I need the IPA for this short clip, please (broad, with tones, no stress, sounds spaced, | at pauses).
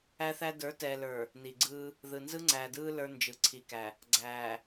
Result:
æ˦ θ æ˦ d ə˞˨˦ t ɛː˨ l ə˞˨ | n i˨ ɡ͡ǀ ɯː˦ | ð ɯ˨ n z ɯ˦ ŋ͡ǀ æː˨ d ɯː˦ l ə˞˦ n d͡ʒ ɯ˨ ǀʰ i˨ k æ˨ | ɡ͡ǀ æː˨